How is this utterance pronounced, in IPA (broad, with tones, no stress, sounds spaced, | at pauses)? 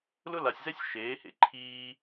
l ʊ˦ l a˨ sʲ z ɛ˦ sʲ ʃ eː˨˦ h ḛ˦ ǃʰ iː˧